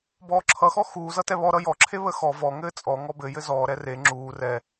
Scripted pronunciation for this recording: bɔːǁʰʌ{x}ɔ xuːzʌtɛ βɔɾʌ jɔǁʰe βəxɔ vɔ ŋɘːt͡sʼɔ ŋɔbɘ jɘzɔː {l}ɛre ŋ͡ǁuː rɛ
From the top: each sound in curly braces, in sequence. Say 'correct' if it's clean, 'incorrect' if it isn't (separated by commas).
correct, incorrect